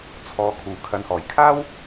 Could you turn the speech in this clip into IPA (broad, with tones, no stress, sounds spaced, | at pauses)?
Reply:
t͡sʰ ɔː˨ kʰ uː˨˩ kʰ ɐ˨ n h ɔː˨˩ j kʰ aː˥ w